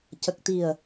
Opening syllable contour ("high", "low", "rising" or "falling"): low